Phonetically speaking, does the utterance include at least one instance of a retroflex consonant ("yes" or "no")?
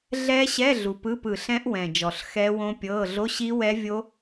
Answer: no